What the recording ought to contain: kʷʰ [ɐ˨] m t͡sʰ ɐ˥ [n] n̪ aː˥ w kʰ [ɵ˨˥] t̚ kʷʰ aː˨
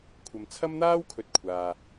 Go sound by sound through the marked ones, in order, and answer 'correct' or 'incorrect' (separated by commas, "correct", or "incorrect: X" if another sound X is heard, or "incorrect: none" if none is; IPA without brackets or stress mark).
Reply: correct, incorrect: m, correct